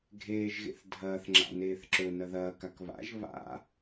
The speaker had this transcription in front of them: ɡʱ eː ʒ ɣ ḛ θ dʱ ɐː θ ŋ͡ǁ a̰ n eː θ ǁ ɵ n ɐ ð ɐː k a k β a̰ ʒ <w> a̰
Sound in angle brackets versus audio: incorrect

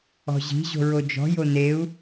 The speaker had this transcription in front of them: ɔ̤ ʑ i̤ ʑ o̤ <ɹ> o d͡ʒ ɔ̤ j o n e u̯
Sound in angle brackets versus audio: correct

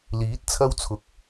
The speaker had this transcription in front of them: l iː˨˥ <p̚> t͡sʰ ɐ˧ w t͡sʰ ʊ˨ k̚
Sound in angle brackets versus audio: incorrect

